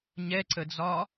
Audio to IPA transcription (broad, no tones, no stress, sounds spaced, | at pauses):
ɲ ɛ ǀ ə d͡z ɒ